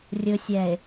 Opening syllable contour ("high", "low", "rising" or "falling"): low